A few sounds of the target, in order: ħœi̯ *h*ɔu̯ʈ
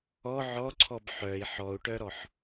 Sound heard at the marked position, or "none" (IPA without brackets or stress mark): ħ